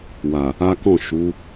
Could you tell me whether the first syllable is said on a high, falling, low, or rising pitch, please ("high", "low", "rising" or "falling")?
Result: low